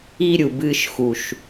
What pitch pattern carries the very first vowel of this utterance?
high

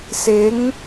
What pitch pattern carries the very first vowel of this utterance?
rising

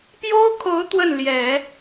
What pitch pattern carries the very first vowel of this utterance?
high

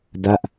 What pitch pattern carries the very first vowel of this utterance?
falling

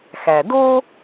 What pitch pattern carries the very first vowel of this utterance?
low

